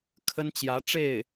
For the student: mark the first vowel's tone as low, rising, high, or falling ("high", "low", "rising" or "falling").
high